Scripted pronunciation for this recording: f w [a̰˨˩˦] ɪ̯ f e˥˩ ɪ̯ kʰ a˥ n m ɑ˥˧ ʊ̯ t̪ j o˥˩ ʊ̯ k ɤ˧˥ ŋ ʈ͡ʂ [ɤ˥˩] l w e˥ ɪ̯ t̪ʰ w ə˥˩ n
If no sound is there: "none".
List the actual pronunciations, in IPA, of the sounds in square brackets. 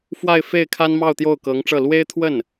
a˥˧, ɤ˥˩

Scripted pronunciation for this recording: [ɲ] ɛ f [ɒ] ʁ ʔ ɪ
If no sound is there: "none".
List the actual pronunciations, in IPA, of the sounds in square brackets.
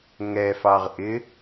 ŋ, ɑ

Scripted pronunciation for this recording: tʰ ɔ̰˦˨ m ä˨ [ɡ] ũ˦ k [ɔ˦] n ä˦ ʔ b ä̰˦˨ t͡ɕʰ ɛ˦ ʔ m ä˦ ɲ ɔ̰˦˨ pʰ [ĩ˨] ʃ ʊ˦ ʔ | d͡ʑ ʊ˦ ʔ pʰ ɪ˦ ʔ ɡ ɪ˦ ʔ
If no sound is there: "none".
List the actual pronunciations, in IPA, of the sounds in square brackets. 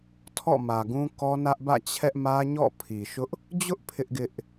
ɡ, ɔ˦, i˨

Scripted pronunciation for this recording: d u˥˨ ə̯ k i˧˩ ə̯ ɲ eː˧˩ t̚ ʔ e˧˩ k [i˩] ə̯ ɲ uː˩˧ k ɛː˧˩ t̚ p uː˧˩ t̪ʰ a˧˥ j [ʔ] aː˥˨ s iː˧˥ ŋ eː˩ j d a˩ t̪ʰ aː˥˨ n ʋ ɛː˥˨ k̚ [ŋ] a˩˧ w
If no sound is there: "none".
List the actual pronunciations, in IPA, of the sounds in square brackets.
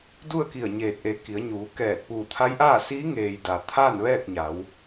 i˩˧, ʔ, ɲ

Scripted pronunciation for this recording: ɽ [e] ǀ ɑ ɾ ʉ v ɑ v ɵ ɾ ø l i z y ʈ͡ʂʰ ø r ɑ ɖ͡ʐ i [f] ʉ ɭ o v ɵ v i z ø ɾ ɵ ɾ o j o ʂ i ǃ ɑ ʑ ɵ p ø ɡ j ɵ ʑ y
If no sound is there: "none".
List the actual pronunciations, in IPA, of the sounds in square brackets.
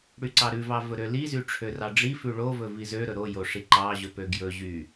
y, f

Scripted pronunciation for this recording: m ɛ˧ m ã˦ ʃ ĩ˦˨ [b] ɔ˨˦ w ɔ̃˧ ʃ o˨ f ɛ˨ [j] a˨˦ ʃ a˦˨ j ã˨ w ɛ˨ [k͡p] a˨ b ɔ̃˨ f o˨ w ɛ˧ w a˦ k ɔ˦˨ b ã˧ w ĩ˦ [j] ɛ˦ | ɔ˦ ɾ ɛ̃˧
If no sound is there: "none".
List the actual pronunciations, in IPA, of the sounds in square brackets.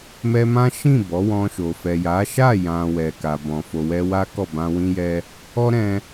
b, j, k, j

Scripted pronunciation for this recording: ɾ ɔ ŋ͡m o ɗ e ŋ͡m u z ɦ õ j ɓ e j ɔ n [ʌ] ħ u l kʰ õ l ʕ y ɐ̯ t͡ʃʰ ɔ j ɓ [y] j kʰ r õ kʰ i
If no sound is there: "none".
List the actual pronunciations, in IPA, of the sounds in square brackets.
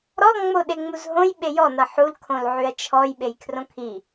ʌ, e

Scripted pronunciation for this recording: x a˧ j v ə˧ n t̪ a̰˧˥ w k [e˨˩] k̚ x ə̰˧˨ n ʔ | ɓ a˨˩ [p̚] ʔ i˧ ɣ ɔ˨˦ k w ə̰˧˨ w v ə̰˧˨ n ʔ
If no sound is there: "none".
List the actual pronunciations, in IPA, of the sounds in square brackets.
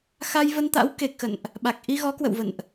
e˨˩, k̚

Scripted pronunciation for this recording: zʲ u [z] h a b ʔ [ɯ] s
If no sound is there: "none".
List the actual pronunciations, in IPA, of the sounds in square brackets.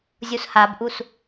s, u

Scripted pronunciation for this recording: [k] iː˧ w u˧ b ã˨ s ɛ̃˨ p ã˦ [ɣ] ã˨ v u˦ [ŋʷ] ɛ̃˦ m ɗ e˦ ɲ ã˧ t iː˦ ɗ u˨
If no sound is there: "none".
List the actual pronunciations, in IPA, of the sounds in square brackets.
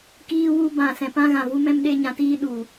k, ɣ, m

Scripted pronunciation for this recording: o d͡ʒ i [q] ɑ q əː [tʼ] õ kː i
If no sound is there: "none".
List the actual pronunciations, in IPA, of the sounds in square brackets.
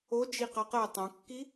q, tˤ

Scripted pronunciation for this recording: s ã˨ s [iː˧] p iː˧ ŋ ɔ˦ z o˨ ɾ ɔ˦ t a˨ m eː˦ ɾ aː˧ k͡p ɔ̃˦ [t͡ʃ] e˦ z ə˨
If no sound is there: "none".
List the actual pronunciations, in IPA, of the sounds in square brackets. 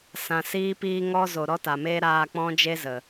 iː˧, d͡ʒ

